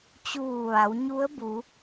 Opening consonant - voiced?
no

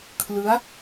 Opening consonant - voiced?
no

